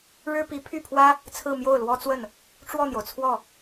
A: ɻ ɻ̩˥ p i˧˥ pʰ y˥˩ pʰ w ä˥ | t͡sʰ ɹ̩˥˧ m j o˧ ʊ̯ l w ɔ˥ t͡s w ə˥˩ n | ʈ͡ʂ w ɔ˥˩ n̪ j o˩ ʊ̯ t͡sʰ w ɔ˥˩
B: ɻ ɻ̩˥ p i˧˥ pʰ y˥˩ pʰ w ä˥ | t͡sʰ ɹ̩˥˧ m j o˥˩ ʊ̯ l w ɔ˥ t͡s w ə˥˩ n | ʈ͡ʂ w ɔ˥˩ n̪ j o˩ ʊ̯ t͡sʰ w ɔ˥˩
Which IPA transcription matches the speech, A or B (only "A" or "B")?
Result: B